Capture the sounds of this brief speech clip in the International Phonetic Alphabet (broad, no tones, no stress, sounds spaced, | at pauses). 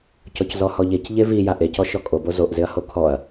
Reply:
c ɔ c z ɔ h ɔ ʎ e c ʎ e v i j a ʔ e c ɔ ʃ ɔ kʼ o b o z o ʔ z ɪ ɐ̯ h o kʰ ɔ ɐ̯